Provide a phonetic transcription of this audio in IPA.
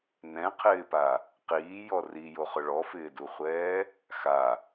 n ɛ̃ qʰ ɪː p a | q iː j ɔ r i j o χ ʊ ɭ ɔ f ɪː d u χʷ ɛː | x a

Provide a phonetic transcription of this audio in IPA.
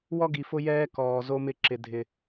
w ɔ˦ ɡ i˨ f ʊ˦ j ɛː˦ k ɔː˨ z o˦ m ɪ˦ ǁ ɪ˦ dʱ ɪ˦

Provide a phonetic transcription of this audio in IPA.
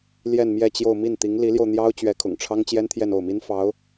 l j ɛ˥˧ n m j ɛ˥˧ t͡ɕ j o˥˧ ʊ̯ m i˥˩ n t̪ i˧˥ ŋ l i˧˥ l j o˧ ʊ̯ n̪ j ɑ˥ ʊ̯ t͡ɕ ɥ ɛ˧˥ kʰ ʊ̰˨˩ ŋ ʈ͡ʂʰ ɑ˥ ŋ t͡ɕ j ɛ˥ n t̪ʰ j ɛ˥˧ n o˥˩ ʊ̯ m i˥ n f ɑ˧˥ ʊ̯

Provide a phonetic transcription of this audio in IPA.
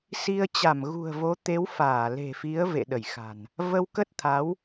s i˧ ə̯ t͡ɕ a˧˩ m ɣ ṳ˨˩ ə̯ v o˨˦ t̪ e˨˦ w f aː˧˩ l e̤˨˩ f i˨˦ ə̯ v ḛ˧˨ ɗ ə˧˩ j x a̤˨˩ n | v ə˧ w k ə˦˥ t̚ t̪ʰ a˨˦ w

